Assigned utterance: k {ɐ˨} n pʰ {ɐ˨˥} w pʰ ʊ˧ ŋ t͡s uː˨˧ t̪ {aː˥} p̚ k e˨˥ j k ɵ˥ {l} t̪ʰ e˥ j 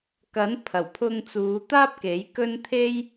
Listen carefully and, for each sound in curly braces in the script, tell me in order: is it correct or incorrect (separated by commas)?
incorrect, incorrect, correct, incorrect